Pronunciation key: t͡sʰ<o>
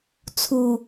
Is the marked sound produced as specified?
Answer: no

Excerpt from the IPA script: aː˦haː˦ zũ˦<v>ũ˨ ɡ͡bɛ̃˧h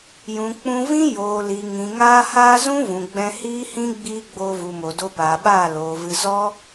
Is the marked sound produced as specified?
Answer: yes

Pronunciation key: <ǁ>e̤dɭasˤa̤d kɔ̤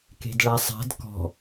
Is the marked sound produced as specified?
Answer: no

